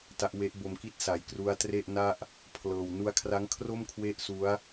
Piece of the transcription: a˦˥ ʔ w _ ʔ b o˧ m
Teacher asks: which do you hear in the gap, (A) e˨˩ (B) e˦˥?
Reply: B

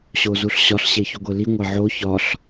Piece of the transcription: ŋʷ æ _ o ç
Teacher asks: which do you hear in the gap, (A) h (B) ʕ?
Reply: B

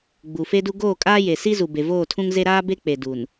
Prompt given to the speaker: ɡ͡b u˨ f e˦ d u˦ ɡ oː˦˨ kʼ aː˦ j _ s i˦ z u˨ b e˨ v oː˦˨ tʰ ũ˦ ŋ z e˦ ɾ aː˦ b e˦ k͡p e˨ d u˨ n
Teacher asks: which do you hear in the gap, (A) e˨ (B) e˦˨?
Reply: A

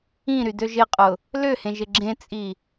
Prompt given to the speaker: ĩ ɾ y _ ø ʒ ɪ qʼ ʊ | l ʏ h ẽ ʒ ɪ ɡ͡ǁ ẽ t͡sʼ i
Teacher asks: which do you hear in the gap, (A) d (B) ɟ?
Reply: A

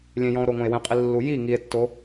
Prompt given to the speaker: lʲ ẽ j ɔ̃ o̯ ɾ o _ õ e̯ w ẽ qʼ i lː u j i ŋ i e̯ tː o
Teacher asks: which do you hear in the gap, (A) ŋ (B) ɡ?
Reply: A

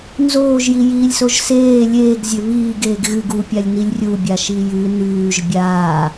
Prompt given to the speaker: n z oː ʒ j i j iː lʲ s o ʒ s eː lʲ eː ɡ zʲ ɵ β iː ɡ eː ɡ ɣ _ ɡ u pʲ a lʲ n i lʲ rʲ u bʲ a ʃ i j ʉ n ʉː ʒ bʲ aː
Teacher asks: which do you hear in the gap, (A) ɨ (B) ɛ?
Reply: A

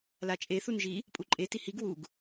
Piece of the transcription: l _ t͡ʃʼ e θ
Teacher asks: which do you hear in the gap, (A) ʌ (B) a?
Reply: B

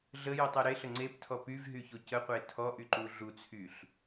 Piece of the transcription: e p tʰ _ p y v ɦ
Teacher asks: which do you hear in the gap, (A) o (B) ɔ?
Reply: B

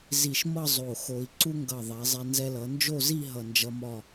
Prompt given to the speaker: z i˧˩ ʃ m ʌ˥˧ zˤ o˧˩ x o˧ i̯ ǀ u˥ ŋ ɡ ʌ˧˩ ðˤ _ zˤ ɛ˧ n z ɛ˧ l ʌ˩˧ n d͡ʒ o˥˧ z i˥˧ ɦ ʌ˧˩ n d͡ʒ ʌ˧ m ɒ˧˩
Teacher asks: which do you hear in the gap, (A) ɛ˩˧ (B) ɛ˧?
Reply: A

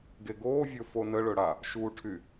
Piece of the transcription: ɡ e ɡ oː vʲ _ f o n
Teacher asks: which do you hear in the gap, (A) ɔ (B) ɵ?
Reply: B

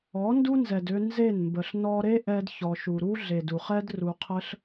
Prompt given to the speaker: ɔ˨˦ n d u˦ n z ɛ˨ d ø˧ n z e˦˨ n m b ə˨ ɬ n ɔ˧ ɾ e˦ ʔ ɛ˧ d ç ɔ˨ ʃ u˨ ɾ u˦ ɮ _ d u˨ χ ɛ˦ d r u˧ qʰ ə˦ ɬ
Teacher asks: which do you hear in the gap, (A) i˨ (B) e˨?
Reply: B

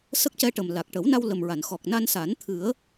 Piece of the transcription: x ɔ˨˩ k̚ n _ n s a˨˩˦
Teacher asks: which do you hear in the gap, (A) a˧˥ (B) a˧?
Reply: B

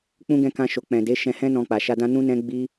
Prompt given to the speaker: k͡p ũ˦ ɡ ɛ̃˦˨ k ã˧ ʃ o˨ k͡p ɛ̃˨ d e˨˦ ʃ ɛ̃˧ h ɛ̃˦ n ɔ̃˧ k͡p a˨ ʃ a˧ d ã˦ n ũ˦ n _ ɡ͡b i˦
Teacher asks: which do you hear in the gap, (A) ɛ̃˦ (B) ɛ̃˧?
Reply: A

